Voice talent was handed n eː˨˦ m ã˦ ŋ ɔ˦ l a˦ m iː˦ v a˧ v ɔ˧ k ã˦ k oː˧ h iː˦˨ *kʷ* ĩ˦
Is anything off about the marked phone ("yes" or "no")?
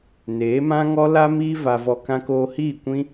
no